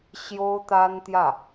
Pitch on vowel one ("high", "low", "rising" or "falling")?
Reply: high